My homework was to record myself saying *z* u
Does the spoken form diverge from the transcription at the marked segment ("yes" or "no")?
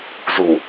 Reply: no